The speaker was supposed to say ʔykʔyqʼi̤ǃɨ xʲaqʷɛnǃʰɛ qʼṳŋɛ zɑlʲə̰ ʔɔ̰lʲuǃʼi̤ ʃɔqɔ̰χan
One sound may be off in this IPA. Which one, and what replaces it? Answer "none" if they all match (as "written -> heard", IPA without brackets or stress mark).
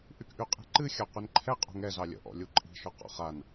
none